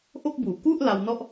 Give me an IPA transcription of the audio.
ʔo˥˩k̚buː˨˩ ku˥˩ʔ la˧wnɔ˥˩ʔ

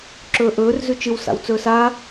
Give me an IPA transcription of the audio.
ǁɵːʔɵːr zʉt͡ʃɨw sa̰wt͡sɵːsa

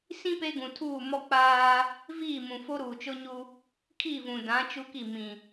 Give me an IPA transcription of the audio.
sĩ˦ pe˦ɡũ˨tʰuː˦˨ mɔ˦ k͡paː˦ | viː˦˨mũ˨fo˦ ɾuː˨t͡ʃo˦ɲu˦ | kʰi˦˨vũ˨dã˨˦ t͡ʃu˦ki˦˨ mĩ˨

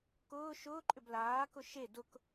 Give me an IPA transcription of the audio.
kʊː ʃʊːǃʼʏb laːkʊ ʃe dʊk

